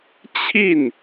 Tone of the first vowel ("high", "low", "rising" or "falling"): falling